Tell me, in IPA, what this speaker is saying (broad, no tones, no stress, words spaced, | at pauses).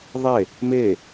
ðˤe | me